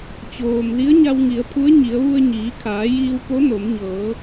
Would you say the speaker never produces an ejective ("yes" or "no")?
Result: yes